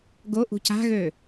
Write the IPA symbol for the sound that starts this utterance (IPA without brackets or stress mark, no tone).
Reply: ɡ